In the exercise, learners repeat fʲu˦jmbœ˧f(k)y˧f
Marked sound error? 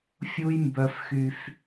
yes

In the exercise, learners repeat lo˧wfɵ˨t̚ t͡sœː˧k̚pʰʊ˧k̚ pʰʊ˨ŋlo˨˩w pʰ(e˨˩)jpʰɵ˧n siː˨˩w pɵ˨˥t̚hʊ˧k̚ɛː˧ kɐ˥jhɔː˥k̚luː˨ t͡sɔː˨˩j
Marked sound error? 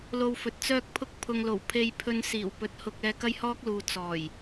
yes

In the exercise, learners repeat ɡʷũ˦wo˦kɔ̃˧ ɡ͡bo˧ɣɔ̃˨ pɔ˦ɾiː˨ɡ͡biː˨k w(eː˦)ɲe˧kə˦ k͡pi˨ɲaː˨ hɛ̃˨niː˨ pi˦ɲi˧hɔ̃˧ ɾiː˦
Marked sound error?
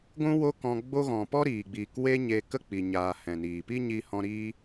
yes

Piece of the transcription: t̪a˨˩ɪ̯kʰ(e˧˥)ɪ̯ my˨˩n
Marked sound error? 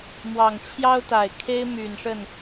yes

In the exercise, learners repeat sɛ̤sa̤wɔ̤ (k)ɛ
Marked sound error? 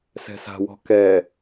no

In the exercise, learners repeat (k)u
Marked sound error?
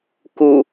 no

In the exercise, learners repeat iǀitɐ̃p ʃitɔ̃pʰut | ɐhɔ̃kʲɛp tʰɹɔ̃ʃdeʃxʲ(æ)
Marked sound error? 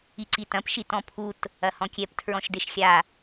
yes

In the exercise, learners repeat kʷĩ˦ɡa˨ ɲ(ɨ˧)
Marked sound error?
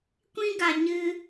no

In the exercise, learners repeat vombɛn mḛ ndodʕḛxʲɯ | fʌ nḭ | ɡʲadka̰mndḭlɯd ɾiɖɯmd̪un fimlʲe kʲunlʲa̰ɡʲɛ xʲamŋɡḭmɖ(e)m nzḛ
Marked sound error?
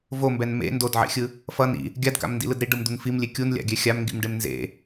no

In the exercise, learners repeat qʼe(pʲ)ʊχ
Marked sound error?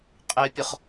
no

